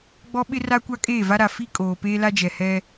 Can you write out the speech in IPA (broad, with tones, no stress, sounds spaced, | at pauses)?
ɡ͡b ɔ˦ ɓ ɪ˦ r a˦ kʷ a˦ kʼ eː˦˨ v a˦ ɾ a˨ f i˦ kʼ oː˨ p eː˦ l a˦ d͡ʒ ɛ˨ h ɛ˦